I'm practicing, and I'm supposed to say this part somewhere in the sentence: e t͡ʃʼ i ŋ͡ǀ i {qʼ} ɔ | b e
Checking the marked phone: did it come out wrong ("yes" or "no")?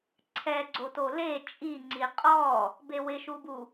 no